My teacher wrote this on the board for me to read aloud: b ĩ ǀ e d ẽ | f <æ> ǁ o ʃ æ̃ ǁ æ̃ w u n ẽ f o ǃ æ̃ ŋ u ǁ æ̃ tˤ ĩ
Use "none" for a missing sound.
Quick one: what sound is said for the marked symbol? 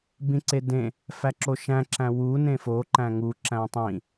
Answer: æ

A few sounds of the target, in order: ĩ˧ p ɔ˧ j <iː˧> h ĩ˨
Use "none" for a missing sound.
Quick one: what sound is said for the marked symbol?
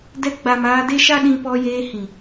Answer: eː˧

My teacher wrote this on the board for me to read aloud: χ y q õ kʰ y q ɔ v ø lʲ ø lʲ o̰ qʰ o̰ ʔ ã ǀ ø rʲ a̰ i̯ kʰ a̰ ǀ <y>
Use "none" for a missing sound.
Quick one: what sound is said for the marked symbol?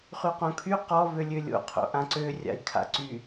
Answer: y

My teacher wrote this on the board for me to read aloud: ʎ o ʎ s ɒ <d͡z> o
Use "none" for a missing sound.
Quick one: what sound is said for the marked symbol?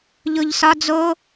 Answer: d͡z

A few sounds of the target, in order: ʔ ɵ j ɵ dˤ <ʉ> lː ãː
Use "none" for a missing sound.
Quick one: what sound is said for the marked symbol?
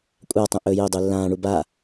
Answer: ʉ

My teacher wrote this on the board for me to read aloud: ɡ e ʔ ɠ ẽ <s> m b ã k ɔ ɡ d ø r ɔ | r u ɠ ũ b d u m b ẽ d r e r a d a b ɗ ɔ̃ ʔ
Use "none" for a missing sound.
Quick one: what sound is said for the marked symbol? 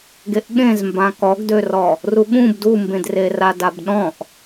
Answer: z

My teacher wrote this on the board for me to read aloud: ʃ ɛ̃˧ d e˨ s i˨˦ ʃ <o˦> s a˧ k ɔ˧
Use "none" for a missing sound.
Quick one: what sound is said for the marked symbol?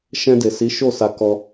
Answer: o˦˨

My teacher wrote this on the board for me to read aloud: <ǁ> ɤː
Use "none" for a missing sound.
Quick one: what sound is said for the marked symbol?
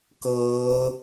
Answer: k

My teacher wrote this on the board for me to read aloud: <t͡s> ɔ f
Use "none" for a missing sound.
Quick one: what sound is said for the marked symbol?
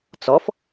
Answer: t͡s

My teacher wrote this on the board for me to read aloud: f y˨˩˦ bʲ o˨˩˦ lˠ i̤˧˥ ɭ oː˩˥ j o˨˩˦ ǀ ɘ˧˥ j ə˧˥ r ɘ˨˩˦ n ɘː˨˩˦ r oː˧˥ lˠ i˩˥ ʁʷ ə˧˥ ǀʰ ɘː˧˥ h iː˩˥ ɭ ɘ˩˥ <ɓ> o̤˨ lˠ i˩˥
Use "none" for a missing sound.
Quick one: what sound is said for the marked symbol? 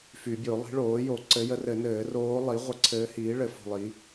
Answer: f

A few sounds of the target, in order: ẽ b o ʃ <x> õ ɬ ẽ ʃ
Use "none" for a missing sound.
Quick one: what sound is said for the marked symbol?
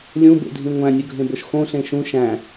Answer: x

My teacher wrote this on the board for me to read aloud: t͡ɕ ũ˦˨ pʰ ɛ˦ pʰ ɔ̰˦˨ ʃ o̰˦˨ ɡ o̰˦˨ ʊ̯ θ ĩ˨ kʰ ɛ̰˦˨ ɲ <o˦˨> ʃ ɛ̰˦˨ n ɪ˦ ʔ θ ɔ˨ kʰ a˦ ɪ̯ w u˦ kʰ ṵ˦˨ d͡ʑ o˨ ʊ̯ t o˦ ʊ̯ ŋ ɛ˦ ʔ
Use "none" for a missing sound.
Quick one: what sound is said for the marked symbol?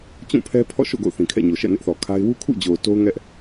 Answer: o˨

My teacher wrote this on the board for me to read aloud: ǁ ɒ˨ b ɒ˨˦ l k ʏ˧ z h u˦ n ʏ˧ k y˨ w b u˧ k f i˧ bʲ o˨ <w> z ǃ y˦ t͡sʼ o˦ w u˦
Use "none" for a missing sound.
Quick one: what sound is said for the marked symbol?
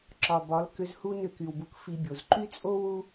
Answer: none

